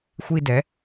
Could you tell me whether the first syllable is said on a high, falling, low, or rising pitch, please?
high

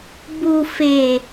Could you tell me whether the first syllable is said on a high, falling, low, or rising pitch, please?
low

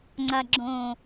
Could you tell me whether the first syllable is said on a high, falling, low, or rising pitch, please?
low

